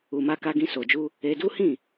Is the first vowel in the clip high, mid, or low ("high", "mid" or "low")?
high